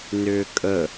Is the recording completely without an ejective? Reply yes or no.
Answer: no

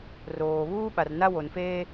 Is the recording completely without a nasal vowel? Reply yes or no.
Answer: yes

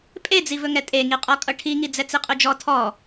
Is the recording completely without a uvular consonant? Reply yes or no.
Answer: no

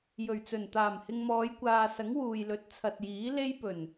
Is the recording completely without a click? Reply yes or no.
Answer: yes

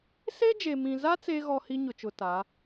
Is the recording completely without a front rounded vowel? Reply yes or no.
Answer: yes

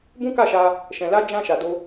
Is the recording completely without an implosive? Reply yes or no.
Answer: yes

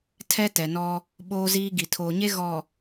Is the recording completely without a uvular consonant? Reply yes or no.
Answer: yes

